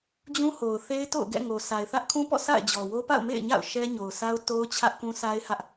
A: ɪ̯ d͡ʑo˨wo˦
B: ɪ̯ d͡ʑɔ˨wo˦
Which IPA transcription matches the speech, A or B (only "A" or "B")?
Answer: B